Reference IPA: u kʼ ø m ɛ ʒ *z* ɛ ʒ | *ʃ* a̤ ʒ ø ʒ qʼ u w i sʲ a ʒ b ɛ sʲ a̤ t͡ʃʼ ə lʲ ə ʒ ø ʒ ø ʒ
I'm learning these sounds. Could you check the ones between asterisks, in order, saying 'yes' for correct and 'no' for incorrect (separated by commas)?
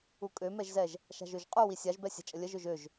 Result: yes, yes